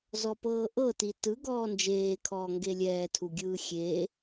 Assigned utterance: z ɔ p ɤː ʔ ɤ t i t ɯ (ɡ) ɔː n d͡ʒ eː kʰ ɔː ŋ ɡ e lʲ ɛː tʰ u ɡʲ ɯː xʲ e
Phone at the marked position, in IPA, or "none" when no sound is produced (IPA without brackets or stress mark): ɡ